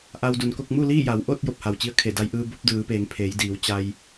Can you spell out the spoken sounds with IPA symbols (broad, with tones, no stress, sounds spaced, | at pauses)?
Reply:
ʔ a˧ w d u˩ n k o˥˨ k̚ m u˥˨ l iː˥˨ j a˩˧ w ʔ o˥˨ t̚ j o˧˩ p̚ h a˩ w t͡ɕ i˧ ə̯ kʰ e˧˩ d a˧ j ʔ ɯː˧ b o˧˥ p̚ d ɯː˩˧ p eː˩˧ ŋ pʰ eː˩˧ j d iː˩˧ w t͡ɕ a˧ j